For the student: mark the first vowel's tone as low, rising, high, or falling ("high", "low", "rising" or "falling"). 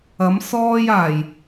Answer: rising